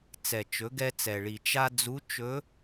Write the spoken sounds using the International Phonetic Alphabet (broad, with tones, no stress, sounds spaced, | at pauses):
t͡s ɛ˩ t͡ʃ ɵ˩˧ ɡ ɛ˧ t͡s ɛ˩ ɭ i˩ t͡ʃ a˧ d͡z u˧˥ t͡ʃ ɵ˧˥